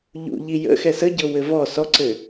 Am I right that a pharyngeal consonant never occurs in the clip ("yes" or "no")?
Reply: yes